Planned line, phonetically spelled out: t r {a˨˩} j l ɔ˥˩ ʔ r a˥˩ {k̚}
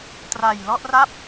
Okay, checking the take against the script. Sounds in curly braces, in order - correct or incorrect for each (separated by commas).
correct, incorrect